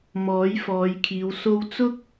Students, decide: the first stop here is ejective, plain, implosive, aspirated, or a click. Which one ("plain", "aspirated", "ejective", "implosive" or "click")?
aspirated